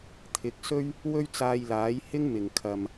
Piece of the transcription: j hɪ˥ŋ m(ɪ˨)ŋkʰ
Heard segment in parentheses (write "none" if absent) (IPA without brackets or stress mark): ɪ˨˩